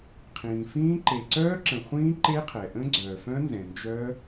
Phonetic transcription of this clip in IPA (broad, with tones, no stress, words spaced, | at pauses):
qʰĩː˩fĩː˦˥ ǃe˩ǀœː˦˥ǁə̃˩ χʷĩː˦˥ǃe˦˥qʰɛ˩ ʔə̃˦˥ɡ͡ǀœː˩fœ̃˦˥ nzɛ̃˩nd͡ʒœ˦˥